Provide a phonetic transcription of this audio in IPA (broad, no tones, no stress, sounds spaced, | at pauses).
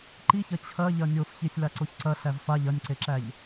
ǃ i ç ɐ t͡ɕʰ ɐ ʎ ɐ nʲ o f ç i sʲ l a ǀ o ç ǀ ɐ ɬ æ v f a ʎ ɐ nʲ ǀ e ǁ æ ʎ